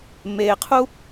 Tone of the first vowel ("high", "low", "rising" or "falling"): low